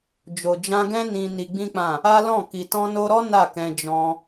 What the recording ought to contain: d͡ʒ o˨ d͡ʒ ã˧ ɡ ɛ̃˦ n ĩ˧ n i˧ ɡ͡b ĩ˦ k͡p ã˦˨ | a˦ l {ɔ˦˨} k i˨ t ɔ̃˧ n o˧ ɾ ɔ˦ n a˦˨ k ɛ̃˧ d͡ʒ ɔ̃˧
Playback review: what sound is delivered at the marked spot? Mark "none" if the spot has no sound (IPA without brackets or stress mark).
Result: ɔ̃˦˨